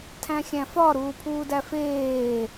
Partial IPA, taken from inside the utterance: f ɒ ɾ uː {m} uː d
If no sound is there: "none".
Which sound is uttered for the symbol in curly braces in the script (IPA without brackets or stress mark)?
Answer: pʰ